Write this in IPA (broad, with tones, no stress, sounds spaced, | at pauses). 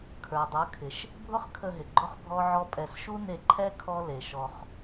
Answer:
kʰ ə˞˨ dˤ ə˞˨˦ kʰ ɪ˨ ʃ | bʱ ʊ˦ χ kʰ ə˧ ɦ ɪ˨ ɡ͡ǃ ʊ˦ χ bʱ ɔ˦ ʕ ɔ˦ pʼ ɛ˧ s ʃ u˦ n e˧ ǃʰ ɛ˦ kʰ ɔ˦ l e˨ ʃ ɔ˧ χ